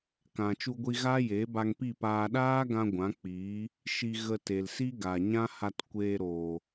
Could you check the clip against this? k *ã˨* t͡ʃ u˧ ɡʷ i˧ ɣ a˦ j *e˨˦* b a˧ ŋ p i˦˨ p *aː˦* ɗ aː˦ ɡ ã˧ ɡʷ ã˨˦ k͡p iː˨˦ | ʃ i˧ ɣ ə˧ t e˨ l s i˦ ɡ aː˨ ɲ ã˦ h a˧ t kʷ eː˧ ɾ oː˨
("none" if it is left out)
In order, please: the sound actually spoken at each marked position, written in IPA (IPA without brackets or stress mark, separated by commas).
ã˨, e˨˦, aː˧